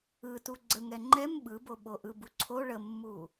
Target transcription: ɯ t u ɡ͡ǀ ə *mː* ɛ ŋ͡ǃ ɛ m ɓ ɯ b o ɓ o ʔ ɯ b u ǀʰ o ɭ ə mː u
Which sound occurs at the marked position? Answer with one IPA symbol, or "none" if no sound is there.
ŋ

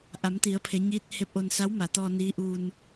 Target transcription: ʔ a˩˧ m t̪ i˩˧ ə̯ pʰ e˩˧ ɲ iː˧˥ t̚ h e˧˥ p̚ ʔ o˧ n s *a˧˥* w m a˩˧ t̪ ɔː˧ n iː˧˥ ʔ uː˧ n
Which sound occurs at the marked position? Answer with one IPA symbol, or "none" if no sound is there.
a˧˥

